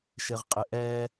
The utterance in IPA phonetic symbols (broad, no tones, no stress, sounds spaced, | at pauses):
ʃ ɪ ʁ qʼ ɪ ʔ ɛ